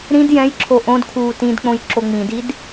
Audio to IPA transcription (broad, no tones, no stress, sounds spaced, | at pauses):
ɾ ĩ d j ɛ̃ j ǁʰ o ʔ õ d kʰ uː t ĩ d k͡p õ j ǁ o ŋ͡m ĩ d i d